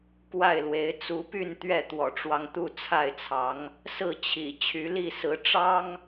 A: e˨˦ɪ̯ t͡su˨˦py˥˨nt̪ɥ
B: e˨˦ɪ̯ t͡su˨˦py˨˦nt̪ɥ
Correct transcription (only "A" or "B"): A